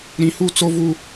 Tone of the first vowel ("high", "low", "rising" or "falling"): low